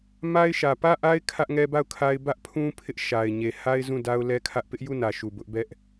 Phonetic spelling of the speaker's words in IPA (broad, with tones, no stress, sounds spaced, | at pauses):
m a˦ ɪ̯ ʃ ä˨ p ä˦˨ ʔ a˦ ɪ̯ kʰ ä˦ ʔ ŋ ɛ˦ b a˦˨ ʊ̯ kʰ a˦ ɪ̯ b ä˦ ʔ pʰ ũ˦ pʰ ɪ˦ ʔ ʃ a˨ ɪ̯ ɲ e˨ h a˦ ɪ̯ z ũ˦˨ d a˦ ʊ̯ l ɛ˦ kʰ ä˦ ʔ p ɪ˦ ʔ j u˦˨ n ä˨ ʃ u˨ b ʊ˦ ʔ b ɛ˦ ʔ